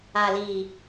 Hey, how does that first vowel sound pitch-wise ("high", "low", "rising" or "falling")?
low